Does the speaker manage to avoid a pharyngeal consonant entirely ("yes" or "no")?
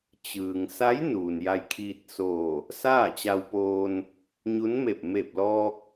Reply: yes